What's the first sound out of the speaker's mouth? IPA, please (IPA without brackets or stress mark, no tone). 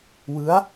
w